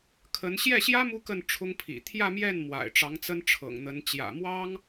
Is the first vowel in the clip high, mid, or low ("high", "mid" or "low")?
mid